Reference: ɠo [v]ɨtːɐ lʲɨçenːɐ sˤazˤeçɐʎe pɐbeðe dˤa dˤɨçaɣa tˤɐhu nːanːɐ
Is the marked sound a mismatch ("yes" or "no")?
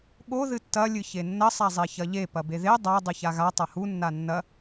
yes